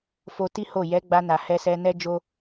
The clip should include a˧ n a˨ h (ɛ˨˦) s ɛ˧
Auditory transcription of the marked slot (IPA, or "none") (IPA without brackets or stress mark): ɛ˧